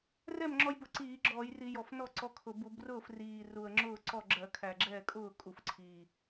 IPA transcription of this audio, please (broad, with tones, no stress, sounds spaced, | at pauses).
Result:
r ɛ˥˩ m ŋ͡ǁ ɔ˧ j b ʊ˧˩˧ ǀ iː˧˩˧ ɡ͡ǁ ɔː˧˩˧ j r i˧˩˧ j ɔ˨˩ f n ɔ˥˩ ǀ ɔ˧ kʰ ʊ˨˩ b u˧˩˧ b r ʊː˥˩ f r iː˨˩ r u˨˩ ə̯ ŋ͡ǁ ʊː˥˩ ǀ ɔ˥˩ ɡ͡ǁ ɜ˧˩˧ kʰ æ˨˩ ɡ͡ǁ ɛː˥˩ kʼ ʊː˥˩ kʼ u˨˩ f ǀʰ iː˨˩